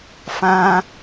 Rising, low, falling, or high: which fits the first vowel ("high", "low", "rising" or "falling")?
high